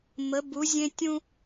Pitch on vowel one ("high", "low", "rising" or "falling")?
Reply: rising